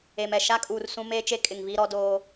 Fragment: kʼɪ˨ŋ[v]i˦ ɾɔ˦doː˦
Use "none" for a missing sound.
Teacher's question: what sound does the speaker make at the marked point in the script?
v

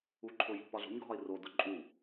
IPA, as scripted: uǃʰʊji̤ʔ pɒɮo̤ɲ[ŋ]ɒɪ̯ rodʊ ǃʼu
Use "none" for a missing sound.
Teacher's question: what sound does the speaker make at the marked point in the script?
ɡʱ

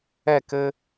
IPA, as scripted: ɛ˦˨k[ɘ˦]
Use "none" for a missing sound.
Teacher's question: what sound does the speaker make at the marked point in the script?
ɘ˦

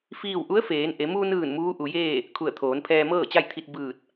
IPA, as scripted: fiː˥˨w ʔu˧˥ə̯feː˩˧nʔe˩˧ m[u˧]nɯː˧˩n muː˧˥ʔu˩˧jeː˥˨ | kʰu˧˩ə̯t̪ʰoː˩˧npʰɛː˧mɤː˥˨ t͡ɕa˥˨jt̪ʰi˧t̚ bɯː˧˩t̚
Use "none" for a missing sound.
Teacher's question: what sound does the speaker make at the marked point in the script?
u˧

